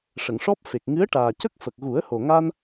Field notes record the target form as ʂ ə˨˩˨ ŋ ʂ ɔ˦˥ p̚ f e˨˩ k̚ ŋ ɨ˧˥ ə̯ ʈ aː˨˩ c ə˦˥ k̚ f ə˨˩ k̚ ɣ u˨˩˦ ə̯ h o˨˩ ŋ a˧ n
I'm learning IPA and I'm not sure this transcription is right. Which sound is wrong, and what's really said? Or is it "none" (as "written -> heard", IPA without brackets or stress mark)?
none